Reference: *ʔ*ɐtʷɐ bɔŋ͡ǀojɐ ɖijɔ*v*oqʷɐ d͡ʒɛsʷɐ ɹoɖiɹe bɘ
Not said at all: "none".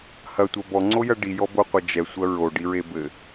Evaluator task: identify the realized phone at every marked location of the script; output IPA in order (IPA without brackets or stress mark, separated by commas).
h, b